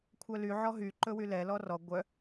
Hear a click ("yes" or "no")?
yes